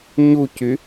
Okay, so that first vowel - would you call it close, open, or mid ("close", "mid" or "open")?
close